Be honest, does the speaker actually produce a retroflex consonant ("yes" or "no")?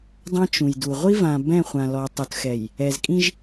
no